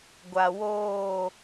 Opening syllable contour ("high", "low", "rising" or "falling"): low